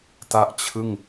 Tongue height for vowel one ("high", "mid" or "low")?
low